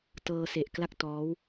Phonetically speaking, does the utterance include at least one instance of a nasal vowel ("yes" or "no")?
no